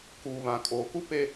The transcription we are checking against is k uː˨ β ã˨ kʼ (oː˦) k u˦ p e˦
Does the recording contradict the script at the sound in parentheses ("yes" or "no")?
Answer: yes